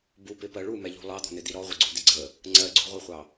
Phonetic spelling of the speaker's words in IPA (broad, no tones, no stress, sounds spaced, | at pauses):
b u p ɪ p ɜ ɭ u m ɛ ʎ ṳ lˠ ɑ d̪ ɔ̤ n̪ ɪ d̪ i ɾ ɔ ʁʷ ɪ ɡ͡ǀ u d̪ ɪ ɡ͡ǀ ə | ŋ͡ǀ ɜ ɡ͡ǀ ṳ ʁʷ ɛ χʷ ɑ